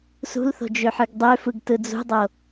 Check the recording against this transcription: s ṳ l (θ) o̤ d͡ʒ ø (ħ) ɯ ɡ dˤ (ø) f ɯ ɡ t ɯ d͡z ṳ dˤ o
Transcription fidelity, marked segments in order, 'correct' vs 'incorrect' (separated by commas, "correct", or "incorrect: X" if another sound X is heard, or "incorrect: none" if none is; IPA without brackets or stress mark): correct, correct, correct